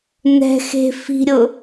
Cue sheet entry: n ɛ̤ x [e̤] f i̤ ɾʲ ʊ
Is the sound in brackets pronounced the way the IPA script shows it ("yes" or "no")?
yes